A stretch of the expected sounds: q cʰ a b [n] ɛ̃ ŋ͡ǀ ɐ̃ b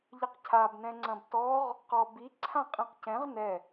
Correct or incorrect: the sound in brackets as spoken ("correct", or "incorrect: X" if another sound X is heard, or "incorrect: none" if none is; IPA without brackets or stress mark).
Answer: correct